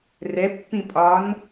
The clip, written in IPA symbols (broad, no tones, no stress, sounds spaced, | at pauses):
r ɛ pː ĩ pʼ ɒ n